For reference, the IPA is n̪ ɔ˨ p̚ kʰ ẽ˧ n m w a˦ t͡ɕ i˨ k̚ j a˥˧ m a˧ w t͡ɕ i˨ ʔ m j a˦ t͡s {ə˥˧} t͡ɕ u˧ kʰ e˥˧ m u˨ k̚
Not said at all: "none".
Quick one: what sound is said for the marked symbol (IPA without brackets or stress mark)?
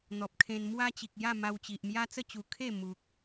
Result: ə˥˧